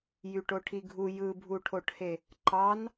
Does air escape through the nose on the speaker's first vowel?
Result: no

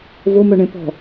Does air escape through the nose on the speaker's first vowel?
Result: no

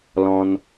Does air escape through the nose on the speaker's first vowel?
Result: yes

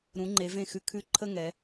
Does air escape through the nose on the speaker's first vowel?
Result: yes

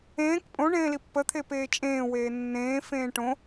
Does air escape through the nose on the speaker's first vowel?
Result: yes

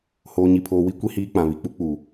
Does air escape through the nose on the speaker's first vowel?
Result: no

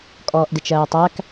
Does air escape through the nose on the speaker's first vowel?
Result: no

